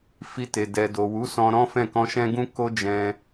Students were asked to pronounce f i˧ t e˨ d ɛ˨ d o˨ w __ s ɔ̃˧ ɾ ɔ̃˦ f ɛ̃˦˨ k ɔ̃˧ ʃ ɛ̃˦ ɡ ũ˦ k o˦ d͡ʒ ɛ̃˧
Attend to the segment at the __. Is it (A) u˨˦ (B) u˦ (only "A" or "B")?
A